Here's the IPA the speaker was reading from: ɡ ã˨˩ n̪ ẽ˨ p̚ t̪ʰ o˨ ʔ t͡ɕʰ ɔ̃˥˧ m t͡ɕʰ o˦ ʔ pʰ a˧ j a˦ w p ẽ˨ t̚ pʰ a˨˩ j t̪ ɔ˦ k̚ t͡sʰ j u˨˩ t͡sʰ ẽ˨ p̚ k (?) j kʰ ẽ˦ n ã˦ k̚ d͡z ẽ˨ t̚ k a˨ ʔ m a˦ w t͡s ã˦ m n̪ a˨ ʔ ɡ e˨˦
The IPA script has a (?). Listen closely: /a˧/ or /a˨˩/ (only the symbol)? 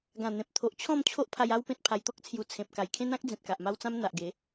a˨˩